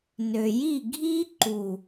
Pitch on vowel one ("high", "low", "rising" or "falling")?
low